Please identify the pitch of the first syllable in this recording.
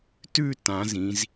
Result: falling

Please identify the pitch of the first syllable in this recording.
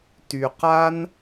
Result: low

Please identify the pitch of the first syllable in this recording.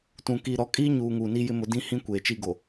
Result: low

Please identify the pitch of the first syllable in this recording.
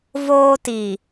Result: high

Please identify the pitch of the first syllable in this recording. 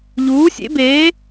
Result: rising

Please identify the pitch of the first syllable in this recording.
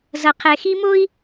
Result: low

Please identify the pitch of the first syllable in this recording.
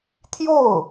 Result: falling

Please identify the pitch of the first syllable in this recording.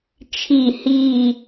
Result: falling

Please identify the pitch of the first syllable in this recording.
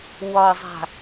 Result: low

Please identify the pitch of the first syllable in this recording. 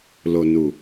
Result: low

